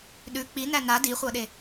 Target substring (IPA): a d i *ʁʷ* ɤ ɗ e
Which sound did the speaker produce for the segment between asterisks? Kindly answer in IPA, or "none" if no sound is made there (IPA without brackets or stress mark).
χʷ